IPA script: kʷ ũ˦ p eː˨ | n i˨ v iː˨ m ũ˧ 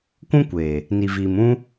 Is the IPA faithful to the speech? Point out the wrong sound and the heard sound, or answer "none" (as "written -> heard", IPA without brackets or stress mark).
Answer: p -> kʷ